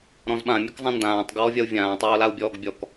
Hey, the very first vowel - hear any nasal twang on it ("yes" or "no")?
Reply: yes